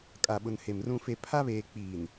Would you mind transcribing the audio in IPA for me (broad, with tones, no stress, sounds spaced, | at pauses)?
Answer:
kʼ a˨ ɓ ʊ˨ n h e˨ m r ũ˦ f e˦ pʰ a˦ β eː˨ k͡p iː˨ n